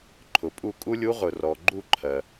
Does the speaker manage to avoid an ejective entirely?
no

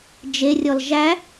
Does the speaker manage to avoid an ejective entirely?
yes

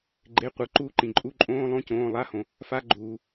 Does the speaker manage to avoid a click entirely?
no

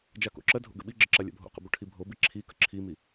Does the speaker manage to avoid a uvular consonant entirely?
no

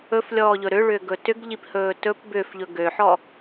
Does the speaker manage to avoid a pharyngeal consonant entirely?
no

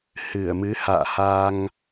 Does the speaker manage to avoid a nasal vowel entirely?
yes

